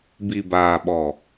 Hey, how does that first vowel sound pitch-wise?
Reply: low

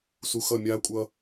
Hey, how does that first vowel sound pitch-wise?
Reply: low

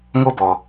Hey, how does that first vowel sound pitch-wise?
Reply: high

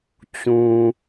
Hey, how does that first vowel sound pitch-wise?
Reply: low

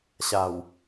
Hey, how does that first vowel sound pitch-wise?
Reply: low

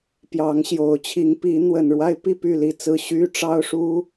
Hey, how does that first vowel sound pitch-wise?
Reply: rising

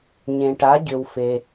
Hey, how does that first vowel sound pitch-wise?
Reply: low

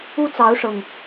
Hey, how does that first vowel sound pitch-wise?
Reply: high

